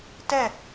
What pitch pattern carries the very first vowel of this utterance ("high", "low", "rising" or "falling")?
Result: falling